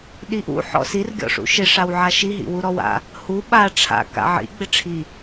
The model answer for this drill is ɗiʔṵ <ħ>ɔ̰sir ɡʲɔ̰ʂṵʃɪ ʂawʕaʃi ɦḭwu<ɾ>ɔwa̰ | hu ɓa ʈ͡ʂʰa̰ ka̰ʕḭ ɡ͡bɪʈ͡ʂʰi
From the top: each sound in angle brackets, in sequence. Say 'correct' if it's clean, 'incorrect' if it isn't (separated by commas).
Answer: correct, correct